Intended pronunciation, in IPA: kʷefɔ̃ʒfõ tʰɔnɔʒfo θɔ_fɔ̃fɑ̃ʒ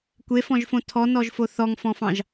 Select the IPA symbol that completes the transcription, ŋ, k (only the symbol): ŋ